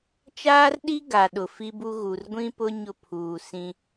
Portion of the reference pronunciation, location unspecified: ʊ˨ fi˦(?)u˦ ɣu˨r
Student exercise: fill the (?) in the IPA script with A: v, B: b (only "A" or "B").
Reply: B